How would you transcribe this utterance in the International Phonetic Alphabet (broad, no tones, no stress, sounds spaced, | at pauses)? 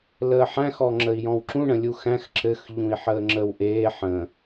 l əː ħ æ̃ x ɔ ŋ͡ǁ ə i̯ j ɔ̃ w ǁ ũ ɳ ə̃ lʲ u x æ̃ x ǁ ɘ x ʎ ũ i̯ ħ əː ŋ͡ǁ ə w ʔ eː ħ ə̃